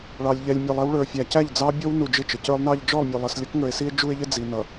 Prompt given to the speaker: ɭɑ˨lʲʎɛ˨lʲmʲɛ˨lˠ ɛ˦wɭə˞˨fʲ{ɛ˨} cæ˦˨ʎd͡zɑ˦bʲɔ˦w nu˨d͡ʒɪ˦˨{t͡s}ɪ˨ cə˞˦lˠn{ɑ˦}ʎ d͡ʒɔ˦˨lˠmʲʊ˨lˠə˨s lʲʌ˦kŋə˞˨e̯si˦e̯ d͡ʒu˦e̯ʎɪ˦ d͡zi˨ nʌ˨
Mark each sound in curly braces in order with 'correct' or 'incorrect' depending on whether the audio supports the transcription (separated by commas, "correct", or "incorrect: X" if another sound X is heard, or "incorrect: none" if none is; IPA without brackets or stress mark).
incorrect: æ˨, incorrect: t͡ʃ, correct